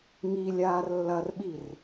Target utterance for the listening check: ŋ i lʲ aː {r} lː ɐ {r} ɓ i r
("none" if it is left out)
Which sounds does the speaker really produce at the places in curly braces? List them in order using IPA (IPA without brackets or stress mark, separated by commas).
r, r